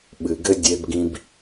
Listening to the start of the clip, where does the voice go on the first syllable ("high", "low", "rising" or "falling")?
low